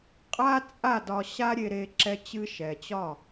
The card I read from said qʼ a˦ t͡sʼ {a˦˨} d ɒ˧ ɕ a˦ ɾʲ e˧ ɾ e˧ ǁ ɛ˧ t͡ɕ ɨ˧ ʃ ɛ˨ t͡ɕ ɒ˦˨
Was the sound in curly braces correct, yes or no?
yes